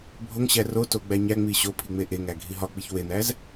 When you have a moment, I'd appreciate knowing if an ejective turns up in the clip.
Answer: no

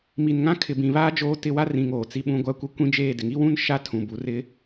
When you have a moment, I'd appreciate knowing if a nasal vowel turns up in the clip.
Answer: yes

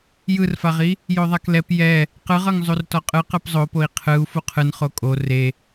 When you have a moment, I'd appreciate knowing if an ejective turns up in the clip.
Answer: yes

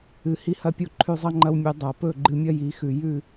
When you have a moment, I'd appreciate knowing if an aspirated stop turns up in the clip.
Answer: yes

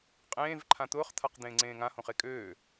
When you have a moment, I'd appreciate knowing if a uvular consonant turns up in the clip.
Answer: yes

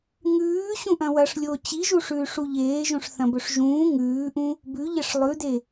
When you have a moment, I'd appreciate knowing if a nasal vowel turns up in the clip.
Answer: yes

